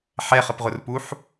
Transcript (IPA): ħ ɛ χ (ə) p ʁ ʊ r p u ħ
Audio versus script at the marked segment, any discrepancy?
no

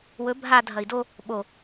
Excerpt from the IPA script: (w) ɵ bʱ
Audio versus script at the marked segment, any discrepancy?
no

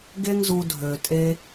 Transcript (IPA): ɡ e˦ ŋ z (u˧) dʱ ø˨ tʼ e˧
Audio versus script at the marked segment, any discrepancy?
no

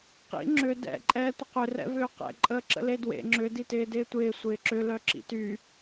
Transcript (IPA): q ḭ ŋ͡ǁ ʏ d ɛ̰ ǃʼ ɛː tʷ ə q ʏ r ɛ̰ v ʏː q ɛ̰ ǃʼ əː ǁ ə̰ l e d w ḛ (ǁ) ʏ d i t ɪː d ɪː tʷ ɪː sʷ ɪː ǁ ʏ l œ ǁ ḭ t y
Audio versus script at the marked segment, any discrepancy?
yes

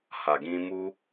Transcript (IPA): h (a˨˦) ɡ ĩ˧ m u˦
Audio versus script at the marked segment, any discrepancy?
yes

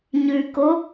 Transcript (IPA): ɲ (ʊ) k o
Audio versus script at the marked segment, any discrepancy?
yes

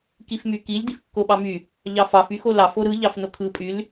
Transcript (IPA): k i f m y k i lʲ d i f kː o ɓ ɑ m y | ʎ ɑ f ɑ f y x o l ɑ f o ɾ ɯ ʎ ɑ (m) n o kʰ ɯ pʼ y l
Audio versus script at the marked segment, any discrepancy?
yes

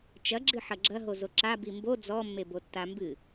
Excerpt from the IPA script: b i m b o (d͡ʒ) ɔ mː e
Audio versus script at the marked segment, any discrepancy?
yes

